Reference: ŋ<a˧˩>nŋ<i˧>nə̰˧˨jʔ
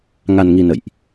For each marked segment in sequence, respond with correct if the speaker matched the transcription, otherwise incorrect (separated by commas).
incorrect, correct